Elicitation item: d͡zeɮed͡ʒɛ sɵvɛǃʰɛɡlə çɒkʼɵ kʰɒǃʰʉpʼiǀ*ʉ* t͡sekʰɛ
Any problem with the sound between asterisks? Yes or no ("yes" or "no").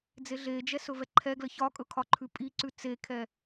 no